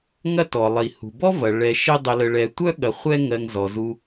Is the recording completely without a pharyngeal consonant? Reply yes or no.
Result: yes